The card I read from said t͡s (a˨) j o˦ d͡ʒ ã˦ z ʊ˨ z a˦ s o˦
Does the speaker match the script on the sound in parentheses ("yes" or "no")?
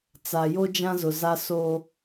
yes